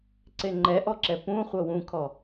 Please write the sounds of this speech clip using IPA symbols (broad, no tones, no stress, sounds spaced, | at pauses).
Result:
ǀ e ŋ͡ǃ ɛ ʔ ɔ ǁ ɛ p ũ χʷ ɤ w ũ kʰ ɔ